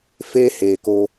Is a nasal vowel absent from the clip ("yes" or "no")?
yes